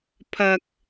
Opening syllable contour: low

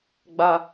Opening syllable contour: high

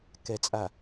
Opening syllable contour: low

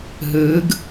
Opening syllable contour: rising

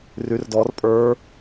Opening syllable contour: rising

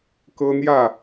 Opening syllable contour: high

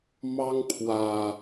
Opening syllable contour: high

